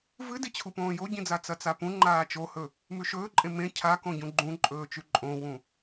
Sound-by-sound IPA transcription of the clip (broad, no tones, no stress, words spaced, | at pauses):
vɨdit͡ɕʰupõː joɟĩd͡za t͡sɐt͡sapũ ŋ͡ǃaːt͡ʃohɵ | mʉʃɵːǃʼẽ mẽ cʰakõ ɟũɡ͡ǃũǃʼɵːt͡ʃʉ ǃʼõwũ